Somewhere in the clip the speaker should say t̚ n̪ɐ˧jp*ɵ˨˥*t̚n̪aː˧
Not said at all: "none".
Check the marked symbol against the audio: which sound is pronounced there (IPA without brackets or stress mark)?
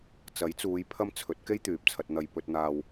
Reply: ɵ˧